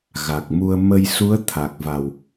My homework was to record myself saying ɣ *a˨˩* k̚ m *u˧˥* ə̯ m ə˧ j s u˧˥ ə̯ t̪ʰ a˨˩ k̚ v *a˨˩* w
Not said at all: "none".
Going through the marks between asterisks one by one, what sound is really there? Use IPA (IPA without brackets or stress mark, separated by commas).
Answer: a˨˩, u˧, a˨˩